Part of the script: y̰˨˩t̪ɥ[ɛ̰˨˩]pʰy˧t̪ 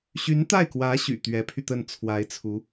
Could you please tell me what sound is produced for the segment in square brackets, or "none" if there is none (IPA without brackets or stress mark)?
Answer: ɛ˧˥